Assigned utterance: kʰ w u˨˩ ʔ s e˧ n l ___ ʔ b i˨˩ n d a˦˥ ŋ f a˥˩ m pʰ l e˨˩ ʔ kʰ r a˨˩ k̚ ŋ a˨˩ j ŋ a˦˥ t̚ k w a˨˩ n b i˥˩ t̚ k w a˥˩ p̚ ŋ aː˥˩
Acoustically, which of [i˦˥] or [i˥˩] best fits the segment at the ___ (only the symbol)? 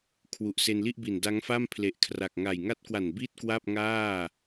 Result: i˥˩